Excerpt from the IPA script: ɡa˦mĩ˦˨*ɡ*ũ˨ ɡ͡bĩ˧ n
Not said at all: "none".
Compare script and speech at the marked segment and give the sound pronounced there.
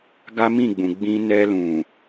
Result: ɡ͡b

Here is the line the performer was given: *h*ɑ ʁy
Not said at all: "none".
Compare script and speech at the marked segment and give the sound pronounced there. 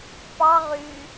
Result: p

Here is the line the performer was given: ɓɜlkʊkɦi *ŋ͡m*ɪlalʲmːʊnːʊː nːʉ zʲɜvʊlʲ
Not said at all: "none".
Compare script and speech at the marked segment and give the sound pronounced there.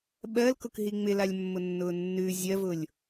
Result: ŋ͡m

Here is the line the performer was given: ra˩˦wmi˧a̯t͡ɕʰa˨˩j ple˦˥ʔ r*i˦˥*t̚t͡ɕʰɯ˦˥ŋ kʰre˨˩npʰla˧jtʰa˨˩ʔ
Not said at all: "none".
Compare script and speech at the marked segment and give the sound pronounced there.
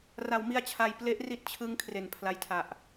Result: i˦˥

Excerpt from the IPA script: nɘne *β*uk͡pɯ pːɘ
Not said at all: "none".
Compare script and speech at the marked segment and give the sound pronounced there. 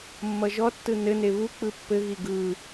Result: β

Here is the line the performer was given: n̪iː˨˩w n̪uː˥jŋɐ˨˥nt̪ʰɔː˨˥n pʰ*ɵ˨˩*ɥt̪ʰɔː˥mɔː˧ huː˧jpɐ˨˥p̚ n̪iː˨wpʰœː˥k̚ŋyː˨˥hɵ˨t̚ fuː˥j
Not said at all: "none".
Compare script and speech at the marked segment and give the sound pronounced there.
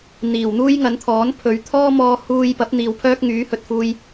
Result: ɵ˨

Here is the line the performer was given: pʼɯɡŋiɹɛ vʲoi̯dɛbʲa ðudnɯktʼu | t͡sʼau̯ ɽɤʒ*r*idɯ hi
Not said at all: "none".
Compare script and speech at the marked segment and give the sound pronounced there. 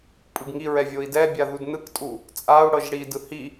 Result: ɽ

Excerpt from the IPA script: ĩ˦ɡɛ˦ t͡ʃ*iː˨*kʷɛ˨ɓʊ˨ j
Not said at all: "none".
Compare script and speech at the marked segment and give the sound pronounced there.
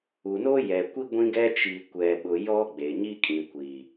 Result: i˨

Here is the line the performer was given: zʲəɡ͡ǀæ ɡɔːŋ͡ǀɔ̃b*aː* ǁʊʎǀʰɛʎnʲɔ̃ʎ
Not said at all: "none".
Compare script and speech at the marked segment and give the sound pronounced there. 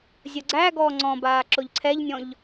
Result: aː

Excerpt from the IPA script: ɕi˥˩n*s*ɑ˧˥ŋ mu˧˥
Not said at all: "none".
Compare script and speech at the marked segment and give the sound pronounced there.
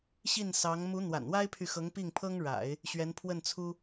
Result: s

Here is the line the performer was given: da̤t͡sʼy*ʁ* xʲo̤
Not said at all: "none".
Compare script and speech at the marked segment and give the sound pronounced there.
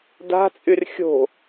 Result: r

